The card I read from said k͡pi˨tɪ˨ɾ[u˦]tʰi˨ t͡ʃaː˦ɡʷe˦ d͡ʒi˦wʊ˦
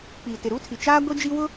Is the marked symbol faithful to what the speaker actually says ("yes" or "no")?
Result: yes